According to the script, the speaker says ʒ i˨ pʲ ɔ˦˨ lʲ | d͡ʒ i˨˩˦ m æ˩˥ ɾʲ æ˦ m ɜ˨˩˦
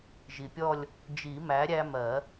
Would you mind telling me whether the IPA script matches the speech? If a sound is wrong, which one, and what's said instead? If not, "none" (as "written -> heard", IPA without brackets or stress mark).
none